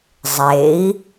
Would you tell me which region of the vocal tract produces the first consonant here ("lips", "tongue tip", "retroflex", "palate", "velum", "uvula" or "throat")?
tongue tip